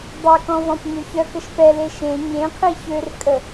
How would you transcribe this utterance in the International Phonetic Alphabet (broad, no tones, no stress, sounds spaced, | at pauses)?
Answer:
dˤ œ k ɔ̃ v ɔ̃ p ɲ ø ç œ k ə ʃ p ɛ l e ʃ ẽ ɲ ẽ qʰ i ç ø r kʼ ə